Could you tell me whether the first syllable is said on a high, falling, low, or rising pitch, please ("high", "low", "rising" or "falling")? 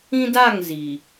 high